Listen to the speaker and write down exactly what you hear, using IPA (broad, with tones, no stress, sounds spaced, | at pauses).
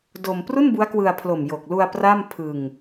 d o˧ m p r u˥˩ n b u˦˥ a̯ k w ɯ˧ a̯ pʰ l o˨˩ m j o˨˩ k̚ l u˧ a̯ p r a˥˩ m pʰ ɯ˧ ŋ